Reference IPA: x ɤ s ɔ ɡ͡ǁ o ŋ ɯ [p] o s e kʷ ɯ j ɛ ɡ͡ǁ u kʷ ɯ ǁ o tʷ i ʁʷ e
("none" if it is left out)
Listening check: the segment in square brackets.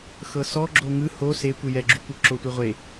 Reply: h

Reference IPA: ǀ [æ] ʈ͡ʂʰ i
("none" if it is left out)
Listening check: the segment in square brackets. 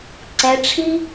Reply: ɛ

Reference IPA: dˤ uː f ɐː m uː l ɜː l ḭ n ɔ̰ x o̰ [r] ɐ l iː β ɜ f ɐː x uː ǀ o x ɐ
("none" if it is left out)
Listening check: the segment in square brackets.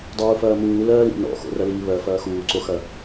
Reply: r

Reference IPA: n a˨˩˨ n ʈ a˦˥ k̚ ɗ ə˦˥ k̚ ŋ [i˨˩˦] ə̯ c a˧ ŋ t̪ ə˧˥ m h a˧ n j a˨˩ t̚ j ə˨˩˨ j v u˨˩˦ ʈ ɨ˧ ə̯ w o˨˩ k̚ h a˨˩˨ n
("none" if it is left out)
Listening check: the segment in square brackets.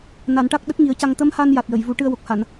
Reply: i˨˩˦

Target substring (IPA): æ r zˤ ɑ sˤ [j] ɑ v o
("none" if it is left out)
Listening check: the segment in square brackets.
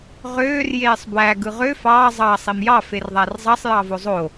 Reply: j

